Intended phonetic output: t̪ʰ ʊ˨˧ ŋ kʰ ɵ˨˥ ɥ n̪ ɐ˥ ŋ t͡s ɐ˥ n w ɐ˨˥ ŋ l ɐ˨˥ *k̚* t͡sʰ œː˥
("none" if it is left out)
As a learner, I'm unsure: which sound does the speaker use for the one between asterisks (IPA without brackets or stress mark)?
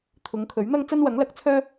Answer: k̚